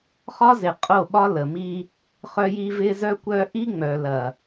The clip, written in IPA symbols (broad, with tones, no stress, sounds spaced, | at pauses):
χ ɒ˦ z ɪ˨ qʼ o˦˨ ɓ ɒ˦ l ə˨ m i˦ | χ œ˦ j i˦ v ɪ˦ z œ˦ kʷ œ˦ ʔ i˦ ŋ͡m œ˨ l ɐ˨